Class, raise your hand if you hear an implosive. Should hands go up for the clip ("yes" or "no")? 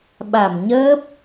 yes